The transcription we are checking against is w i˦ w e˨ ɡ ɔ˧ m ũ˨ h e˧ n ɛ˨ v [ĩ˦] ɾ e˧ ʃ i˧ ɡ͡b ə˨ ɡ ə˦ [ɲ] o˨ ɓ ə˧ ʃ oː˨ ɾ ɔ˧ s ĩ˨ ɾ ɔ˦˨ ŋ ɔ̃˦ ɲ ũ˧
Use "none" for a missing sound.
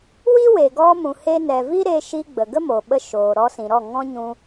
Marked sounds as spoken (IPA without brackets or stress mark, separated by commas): i˦, m